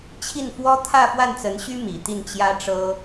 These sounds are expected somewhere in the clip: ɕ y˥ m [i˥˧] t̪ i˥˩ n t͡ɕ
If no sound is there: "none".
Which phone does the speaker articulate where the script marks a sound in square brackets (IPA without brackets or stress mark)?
i˨˩